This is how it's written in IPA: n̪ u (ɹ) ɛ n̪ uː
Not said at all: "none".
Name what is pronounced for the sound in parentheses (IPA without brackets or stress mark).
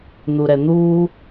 ɾ